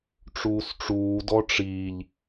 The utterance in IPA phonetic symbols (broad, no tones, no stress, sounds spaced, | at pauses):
ʈ͡ʂ uː s ʈ͡ʂ uː d ɔ ʈ͡ʂ iː ʎ